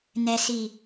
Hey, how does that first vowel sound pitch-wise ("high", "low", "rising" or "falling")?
low